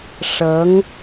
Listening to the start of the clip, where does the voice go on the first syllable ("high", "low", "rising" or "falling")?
rising